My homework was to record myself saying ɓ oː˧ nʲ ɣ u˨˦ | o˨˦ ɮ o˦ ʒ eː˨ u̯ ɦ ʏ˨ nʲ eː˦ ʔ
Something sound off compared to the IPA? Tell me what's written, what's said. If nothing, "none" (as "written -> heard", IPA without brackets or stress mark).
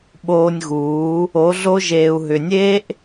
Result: u˨˦ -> uː˨˦